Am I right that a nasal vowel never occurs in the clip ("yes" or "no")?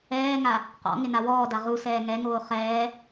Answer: yes